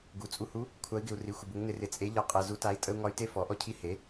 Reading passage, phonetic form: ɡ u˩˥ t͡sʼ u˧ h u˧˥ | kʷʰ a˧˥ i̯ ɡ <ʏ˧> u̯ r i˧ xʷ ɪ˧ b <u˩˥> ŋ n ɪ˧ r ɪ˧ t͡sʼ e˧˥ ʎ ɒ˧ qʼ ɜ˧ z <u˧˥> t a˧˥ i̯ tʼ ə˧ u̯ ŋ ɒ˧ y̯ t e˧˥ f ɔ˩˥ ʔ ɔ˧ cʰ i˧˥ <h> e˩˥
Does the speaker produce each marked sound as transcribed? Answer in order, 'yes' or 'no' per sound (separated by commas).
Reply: no, yes, yes, yes